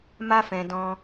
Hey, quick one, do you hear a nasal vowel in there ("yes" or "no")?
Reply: yes